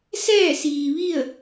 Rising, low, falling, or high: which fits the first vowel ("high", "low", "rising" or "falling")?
falling